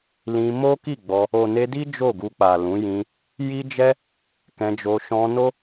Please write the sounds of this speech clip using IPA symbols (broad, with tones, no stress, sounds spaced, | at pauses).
l ĩ˧ m o˦ k i˦˨ ɡ͡b ɔ˧ | o˨ n e˧ d i˦ d͡ʒ o˦˨ ɡ u˧ k͡p a˨ l ũ˨˦ j ĩ˧ | j i˦ d͡ʒ ɛ˦ | k ɛ̃˧ d͡ʒ o˧ ʃ ɔ̃˧ n o˦